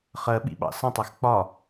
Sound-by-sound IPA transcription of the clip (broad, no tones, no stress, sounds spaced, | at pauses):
χ ɜ ɓ ḭ ɓ ɑ̰ s ə̃ tˤ æ x k͡p ɒ